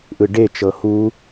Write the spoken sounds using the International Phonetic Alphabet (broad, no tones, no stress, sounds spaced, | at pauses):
ʔ ɯ ɖ e t͡ʃ ɤ h u